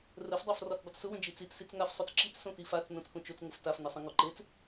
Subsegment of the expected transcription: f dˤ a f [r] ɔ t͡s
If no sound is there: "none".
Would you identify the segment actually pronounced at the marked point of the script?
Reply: r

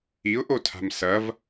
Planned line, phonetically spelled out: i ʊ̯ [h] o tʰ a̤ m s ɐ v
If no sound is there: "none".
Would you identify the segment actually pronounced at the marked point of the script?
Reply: ʔ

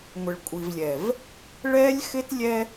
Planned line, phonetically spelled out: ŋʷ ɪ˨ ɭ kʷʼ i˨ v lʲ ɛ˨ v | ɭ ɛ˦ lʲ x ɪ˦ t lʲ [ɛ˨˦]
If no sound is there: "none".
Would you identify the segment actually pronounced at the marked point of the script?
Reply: ɛ˦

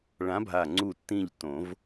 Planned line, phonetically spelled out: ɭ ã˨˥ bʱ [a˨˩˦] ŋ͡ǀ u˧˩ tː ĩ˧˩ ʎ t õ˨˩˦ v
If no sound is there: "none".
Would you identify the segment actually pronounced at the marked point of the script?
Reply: a˧˩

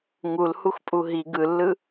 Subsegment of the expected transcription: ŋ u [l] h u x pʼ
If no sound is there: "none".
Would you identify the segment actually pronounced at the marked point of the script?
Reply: l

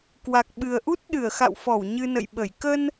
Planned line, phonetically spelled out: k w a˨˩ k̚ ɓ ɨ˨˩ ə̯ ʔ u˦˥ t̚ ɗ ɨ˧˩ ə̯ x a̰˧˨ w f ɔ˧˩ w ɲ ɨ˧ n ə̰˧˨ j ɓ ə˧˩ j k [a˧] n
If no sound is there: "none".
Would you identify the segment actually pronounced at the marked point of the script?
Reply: ə˧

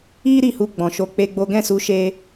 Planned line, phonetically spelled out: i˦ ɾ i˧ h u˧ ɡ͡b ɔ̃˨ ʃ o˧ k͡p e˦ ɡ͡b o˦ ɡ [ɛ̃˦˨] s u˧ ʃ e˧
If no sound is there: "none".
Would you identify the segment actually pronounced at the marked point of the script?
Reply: ɛ̃˦˨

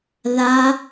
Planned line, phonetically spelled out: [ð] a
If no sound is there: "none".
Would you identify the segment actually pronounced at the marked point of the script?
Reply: ð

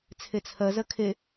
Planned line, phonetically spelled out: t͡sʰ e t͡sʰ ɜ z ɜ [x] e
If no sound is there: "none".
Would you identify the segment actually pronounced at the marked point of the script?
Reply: kʰ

